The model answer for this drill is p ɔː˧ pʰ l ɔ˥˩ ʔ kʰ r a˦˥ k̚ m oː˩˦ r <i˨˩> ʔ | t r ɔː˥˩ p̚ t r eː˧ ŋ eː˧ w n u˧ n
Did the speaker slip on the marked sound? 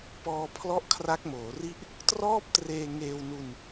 yes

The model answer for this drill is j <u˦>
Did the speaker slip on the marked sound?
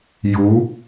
yes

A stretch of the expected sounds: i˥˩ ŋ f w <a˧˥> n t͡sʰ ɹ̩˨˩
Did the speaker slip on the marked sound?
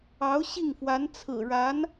no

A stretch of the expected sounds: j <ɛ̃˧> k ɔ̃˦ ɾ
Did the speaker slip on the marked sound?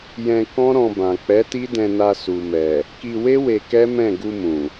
no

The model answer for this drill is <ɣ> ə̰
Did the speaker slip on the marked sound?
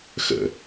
yes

